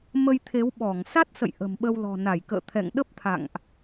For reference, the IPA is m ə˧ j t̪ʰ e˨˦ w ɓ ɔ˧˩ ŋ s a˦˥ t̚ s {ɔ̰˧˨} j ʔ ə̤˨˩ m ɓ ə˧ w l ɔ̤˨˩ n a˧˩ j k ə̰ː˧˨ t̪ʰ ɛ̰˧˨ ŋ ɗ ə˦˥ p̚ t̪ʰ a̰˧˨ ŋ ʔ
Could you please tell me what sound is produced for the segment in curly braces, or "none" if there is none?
ə̰˧˨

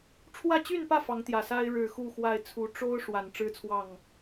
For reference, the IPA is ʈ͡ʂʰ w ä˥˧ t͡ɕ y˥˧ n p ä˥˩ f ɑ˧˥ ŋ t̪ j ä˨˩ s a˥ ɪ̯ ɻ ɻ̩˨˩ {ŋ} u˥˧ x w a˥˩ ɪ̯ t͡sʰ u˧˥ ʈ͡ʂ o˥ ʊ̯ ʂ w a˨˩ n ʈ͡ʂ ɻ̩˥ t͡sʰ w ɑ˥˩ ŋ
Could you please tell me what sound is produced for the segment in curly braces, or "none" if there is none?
x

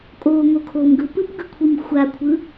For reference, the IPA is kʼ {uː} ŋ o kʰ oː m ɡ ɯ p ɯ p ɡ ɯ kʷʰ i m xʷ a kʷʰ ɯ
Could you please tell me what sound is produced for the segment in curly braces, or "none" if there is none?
oː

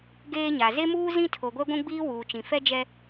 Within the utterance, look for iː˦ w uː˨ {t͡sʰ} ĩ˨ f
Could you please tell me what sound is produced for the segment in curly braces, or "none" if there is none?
t͡ʃ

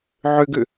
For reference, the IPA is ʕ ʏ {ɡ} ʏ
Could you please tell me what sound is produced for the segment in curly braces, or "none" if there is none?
ɡ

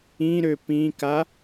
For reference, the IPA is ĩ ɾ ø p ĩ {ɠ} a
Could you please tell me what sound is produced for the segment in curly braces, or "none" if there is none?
k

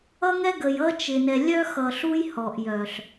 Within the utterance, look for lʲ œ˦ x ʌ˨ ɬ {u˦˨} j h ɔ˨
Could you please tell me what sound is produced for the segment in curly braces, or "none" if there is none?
u˦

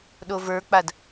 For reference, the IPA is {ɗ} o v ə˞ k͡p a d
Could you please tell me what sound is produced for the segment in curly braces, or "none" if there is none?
ɗ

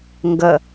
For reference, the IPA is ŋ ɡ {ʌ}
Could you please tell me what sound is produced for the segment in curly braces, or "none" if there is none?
ʌ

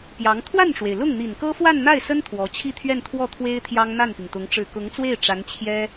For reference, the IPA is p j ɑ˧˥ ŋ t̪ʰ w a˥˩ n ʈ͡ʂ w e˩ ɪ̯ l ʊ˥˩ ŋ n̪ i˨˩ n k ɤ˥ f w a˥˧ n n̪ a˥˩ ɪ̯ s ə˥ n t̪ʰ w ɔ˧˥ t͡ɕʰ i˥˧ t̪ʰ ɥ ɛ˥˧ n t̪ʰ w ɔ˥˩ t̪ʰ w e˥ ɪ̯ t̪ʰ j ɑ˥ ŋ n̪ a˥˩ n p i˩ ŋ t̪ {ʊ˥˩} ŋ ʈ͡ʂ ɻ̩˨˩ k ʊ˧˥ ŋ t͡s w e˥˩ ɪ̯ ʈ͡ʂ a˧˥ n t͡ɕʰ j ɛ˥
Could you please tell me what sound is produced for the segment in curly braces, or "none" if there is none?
ʊ˧˥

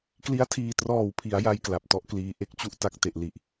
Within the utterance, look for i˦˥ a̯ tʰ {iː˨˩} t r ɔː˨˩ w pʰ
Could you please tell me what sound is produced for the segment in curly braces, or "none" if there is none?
iː˨˩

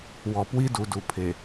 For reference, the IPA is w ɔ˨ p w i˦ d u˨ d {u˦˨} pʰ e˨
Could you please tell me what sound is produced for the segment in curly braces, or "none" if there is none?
u˨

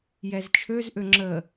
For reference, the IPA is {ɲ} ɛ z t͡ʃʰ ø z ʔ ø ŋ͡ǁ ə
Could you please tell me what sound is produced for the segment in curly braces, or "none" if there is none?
j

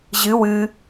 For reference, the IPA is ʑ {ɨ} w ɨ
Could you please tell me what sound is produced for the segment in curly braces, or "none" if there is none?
ɨ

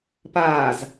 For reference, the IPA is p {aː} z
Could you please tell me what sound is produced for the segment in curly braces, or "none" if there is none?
aː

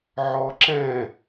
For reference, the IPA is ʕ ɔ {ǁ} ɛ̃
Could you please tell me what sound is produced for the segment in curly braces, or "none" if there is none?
ǁ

